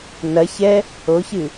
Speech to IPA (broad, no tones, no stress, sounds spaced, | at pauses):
n ɐ ç ɛ | o ç ɨ